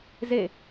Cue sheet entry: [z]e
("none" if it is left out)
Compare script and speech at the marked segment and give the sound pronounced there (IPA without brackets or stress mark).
z